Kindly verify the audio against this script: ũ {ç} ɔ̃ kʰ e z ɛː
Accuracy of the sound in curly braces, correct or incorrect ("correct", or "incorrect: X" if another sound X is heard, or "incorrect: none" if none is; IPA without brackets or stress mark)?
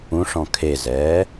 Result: incorrect: ʂ